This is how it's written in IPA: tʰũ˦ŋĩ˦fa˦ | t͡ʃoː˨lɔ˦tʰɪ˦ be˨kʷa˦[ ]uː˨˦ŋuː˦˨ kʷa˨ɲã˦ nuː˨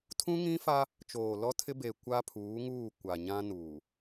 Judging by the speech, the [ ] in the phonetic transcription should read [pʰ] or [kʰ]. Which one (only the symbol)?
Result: pʰ